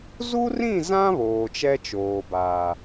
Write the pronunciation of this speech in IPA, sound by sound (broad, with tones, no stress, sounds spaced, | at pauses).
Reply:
z u˦ r ĩ˦˨ z ã˦ β oː˨ t͡ʃ ɛ˦ t͡ʃ oː˨ b aː˨